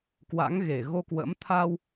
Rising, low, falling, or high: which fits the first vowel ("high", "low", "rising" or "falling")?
rising